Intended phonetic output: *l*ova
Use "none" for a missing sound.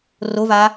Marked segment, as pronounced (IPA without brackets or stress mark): r